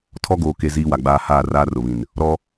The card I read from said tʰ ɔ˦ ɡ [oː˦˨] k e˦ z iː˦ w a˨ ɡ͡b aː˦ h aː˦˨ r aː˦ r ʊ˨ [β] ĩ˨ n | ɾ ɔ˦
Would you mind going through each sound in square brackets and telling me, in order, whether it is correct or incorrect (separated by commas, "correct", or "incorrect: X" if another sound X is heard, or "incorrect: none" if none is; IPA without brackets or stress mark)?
incorrect: oː˨, correct